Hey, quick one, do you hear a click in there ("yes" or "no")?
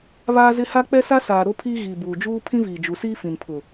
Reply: no